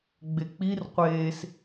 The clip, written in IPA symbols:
ɡ͡b e k͡p i r qʷ eː s

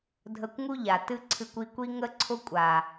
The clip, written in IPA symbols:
dʱ ə˧ kʷ ŋ u˦ ʎ a˨ t ɨ˦ ǀʰ ɨ˧ kʷ i˧ kʷ i˦ ŋ ə˦ ǀʰ ʊ˦ kʷʼ a˨

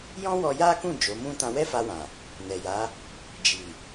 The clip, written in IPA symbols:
j ɔ̃˦ w ɔ˧ j a˦ k ũ˦˨ d͡ʒ o˨˦ m ũ˦ t ã˧ w ɛ˦ f a˧ w ã˨ | n ɛ˨ j a˨˦ | d͡ʒ i˨

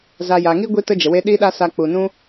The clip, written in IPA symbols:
z a˨ j a˨ ŋ i˦ ɡʷ i˦ t ə˦ d͡ʒ ə˨ w e˦ ɗ i˦ ɗ a˦ s a˧ k͡p u˨ n ũ˦

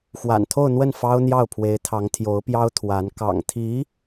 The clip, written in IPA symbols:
x w a̰˨˩ n t̪ʰ o˥˧ ʊ̯ n̪ w ə˥˩ n f ɑ˥ ʊ̯ n̪ j ɑ˥˩ ʊ̯ pʰ w e˧˥ ɪ̯ t̪ʰ ɑ˧˥ ŋ t̪ʰ j o˧˥ ʊ̯ p j ɑ˥ ʊ̯ t̪ʰ w a˧˥ n k ɑ̰˨˩ ŋ t̪ʰ i˧˥

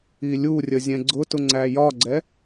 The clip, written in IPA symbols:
i lʲ u rʲ ə zʲ ɛ̃ ɡ͡ǀ ʊ t ʊ ŋ͡ǀ æ j ɒ ɡ͡ǀ ɛ

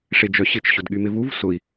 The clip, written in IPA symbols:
ʂ e d͡ʒ œ ɕ ɪ t͡ʃ ɕ ʊ d ɠ y m ɪ v u v s ʊ i̯

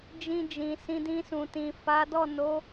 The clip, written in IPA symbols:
d͡ʒ ĩ˧ d͡ʒ ĩ˨ s ĩ˧ d ĩ˧ s ũ˨ t ĩ˨ f a˨˦ d ɔ˦˨ n o˨˦

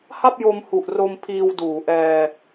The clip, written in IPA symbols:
h a˥˩ p̚ j o˧ m h u˨˩ ʔ r o˧ m pʰ iː˧ w d uː˩˦ ʔ ɛː˧

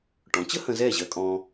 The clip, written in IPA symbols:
ʈ ɔ̃˩˥ t͡ɕ ə˥ h ə̃˧ z ɛː˥˩ ʑ ɜ˧ kʼ ɔ̃ː˧

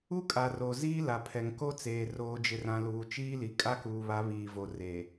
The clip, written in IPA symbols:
u˦ kʼ a˨ r o˨ z iː˦ l a˨ pʰ ɛ˨ ŋ k o˦ t͡s eː˨ r oː˨ d͡ʒ ɪ˨ r ã˨ l uː˨ t͡ʃ iː˦ l i˨ kʼ a˦ k uː˨ β a˨˦ β iː˨ v o˨ r e˨

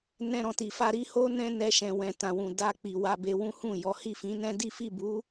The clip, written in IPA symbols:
n ɛ̃˧ ɾ ɔ̃˨ t i˨ f a˧ ɾ i˦ h o˦ n ɛ̃˦ n ɛ˧ ʃ ɛ̃˨ w ɛ̃˨ t ã˨ w ũ˨ d a˧ k͡p i˨ w a˧ b e˧ w ũ˦ h ũ˦˨ j ɔ˨˦ h i˦˨ f ĩ˨˦ n ɛ̃˦ d i˦ f i˦˨ b u˨˦

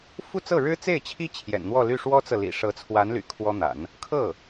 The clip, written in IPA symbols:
f u˥˧ t͡s ɤ˥˩ ɻ ɻ̩˥ t͡s e˥˩ ɪ̯ t͡ɕʰ i˥ t͡ɕʰ j ɛ̰˨˩ n n̪ w ɔ˥˧ l y˥˩ ʂ w ɔ˥ t͡s ɤ˨ l ḭ˨˩ ʂ ɤ˧˥ t͡sʰ w a˧˥ n l y̰˨˩ kʰ w ɔ˥ n̪ a̰˨˩˦ n | kʰ ɤ˥˩

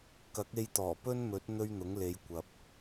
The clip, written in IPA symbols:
k ɐ˨˥ k̚ e˧ j t̪ ɔː˨˩ p ɵ˥ n m ɵ˨˥ t̚ n̪ ɵ˥ ɥ n̪ ʊ˨˥ ŋ l e˨˧ j kʷ ɐ˨ p̚

